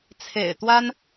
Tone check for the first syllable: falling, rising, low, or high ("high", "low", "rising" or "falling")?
low